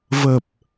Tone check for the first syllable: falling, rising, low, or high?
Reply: low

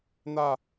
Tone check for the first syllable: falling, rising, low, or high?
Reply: falling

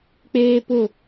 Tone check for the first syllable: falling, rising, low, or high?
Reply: high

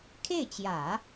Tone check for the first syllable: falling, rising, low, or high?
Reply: falling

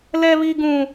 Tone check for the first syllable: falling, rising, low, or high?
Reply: high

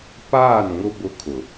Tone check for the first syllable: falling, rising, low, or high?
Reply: falling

